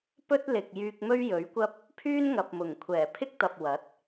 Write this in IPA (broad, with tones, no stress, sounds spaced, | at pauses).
p ɵ˥ t̚ l ɪ˨ k̚ j yː˧ k̚ m ɵ˥ ɥ j ɵ˨˥ ɥ kʷ ɐ˥ p̚ | pʰ yː˥ n ŋ ɐ˨ p̚ m ʊ˨˩ ŋ kʷʰ ɛː˨˩ pʰ ɪ˥ k̚ t̪ ɐ˨ p̚ w ɐ˨˥ t̚